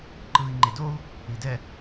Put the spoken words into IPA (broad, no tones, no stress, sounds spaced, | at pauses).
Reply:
ǃ ɯ i̯ ŋ͡ǃ e d o u̯ | i d ɛ